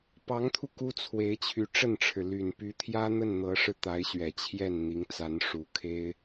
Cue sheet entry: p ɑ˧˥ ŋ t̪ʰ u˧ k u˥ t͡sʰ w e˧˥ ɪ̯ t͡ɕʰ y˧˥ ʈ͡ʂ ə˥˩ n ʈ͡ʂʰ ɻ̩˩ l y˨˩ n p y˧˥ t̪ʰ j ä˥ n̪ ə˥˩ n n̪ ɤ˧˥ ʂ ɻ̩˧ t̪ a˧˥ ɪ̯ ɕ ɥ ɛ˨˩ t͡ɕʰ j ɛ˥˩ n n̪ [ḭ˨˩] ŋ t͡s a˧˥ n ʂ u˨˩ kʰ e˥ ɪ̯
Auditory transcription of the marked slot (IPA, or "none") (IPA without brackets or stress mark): i˧˥